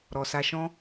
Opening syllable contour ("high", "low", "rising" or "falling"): low